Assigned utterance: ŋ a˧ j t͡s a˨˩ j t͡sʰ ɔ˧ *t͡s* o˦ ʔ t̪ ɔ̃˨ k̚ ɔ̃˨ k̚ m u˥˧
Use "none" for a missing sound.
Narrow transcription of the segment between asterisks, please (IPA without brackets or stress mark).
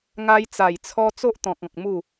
t͡s